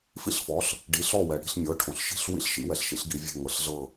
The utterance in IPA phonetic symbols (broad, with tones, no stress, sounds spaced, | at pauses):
f ḭ˥˩ ɬ f ɔ˩˥ ɬ | ɖ i˩˥ ɬ ɔ˥˩ w ɛ˩ ɽ i̤˥˩ ɬ mʲ ɤ˩˥ ʈʰ õ˩ ɬ ʃ i̤˥˩ ɬ w ḭ˥˩ ɬ ʃ ḭ˩˥ w ɛ˩ ɬ ʃ ḭ˩˥ ɬ ɡ i˩˥ vʲ e̤˥˩ ŋ ɤ˩˥ ɬ ɮ ɤ˥˩